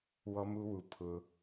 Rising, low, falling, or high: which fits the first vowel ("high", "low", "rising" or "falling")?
high